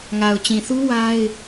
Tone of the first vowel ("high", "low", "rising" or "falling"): low